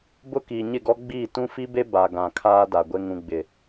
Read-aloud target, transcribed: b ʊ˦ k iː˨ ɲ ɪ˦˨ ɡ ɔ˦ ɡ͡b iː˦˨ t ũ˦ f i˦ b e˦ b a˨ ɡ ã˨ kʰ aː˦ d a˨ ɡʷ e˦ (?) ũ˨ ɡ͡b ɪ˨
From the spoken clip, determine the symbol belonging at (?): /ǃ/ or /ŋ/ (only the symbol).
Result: ŋ